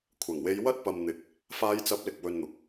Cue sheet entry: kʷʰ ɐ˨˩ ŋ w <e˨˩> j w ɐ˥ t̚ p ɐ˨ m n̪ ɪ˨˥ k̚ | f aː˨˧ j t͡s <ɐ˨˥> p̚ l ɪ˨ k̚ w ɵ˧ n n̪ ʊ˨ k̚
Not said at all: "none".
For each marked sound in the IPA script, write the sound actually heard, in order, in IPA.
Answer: e˨˧, ɐ˨˥

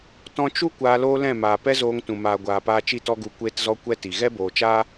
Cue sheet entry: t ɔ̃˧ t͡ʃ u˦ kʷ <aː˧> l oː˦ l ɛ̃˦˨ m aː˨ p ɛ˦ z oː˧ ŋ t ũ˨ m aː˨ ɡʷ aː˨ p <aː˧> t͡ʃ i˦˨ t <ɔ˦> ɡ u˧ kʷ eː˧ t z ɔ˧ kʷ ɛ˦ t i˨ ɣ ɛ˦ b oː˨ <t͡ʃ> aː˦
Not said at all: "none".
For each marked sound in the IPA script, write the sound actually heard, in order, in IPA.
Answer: aː˧, aː˧, ɔ˦, t͡ʃ

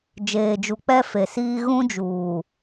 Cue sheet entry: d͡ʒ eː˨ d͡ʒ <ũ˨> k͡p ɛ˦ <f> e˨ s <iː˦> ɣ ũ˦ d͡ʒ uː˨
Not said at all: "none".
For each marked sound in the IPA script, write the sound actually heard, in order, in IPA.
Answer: u˨, f, iː˦

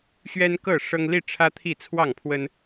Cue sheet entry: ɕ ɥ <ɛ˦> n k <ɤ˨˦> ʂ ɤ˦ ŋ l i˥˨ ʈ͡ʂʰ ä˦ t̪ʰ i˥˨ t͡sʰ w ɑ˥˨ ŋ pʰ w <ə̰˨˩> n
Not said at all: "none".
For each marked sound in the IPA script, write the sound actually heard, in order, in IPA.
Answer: ɛ˦, ɤ˥˨, ə˦

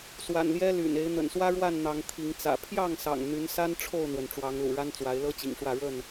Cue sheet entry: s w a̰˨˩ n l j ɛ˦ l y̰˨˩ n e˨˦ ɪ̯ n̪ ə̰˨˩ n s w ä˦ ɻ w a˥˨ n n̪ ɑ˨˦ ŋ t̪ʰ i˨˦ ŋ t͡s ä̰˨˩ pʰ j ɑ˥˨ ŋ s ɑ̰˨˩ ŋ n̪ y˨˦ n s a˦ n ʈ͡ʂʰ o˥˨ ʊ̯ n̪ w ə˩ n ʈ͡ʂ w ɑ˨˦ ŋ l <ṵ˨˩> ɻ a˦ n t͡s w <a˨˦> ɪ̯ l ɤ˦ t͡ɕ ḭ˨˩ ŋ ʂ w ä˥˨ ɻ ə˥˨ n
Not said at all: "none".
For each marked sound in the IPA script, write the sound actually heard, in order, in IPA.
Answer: ṵ˨˩, a˨˦

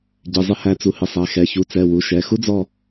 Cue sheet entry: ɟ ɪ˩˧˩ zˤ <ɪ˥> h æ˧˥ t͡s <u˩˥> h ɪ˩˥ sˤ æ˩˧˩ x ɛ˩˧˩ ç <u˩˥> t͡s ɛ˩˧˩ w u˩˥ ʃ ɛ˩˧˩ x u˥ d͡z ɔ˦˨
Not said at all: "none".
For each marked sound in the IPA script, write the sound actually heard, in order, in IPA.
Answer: ɪ˥, u˩˥, u˩˥

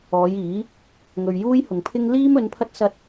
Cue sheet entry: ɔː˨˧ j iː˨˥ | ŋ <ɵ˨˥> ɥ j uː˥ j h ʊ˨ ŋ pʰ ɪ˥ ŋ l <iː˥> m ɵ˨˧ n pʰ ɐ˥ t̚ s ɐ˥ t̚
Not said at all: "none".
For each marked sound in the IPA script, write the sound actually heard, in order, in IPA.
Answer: ɵ˨, iː˥

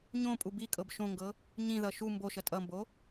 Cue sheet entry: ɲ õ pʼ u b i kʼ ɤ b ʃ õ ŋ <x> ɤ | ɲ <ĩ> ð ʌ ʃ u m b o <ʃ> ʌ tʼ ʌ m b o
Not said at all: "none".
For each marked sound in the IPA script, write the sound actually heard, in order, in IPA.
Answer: ɡ, ĩ, ʃ

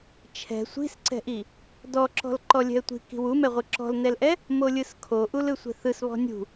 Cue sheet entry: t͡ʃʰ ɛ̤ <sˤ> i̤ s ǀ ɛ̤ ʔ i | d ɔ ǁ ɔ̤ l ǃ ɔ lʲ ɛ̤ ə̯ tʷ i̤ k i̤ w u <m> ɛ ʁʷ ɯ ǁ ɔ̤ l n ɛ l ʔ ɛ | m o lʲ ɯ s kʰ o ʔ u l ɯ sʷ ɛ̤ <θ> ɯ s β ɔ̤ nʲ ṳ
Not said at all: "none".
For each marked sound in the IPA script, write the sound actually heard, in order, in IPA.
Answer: sʷ, m, θ

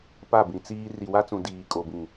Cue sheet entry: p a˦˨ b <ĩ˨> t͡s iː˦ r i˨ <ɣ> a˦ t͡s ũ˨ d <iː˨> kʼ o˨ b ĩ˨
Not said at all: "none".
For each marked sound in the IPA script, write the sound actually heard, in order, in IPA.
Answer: ĩ˨, w, iː˨

